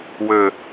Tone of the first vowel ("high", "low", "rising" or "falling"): low